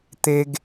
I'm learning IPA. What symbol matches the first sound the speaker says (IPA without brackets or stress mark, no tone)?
t̪